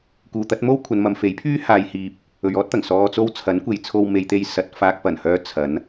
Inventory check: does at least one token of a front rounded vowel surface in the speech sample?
yes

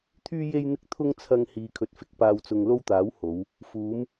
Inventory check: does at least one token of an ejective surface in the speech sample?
no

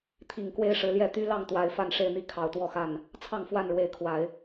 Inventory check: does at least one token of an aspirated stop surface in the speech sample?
yes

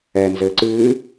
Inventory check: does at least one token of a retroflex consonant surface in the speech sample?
no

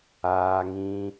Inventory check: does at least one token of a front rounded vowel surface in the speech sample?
no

